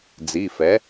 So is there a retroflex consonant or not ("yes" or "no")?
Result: no